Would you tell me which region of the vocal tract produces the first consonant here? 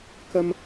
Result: velum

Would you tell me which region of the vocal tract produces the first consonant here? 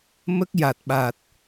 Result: lips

